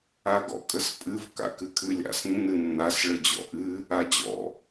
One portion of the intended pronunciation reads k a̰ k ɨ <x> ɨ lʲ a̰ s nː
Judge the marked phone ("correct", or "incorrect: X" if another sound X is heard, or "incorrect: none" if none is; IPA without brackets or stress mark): incorrect: kʰ